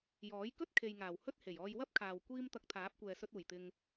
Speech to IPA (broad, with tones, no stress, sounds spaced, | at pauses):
j ɔː˨˥ j k ɵ˥ t̚ kʰ e˨ j ŋ aː˨˩ w h ɵ˥ t̚ h e˨˩ j ɔː˧ j w ɐ˥ p̚ kʰ aː˨ w kʷ iː˥ m t̪ ɐ˧ k̚ t̪ʰ aː˨˥ p̚ kʷ ɛː˨ s ɵ˧ t̚ uː˨˩ j t̪ ɪ˧ ŋ